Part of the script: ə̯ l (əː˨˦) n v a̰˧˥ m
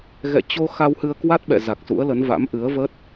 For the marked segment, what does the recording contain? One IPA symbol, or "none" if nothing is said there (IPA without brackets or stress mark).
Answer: ə˨˦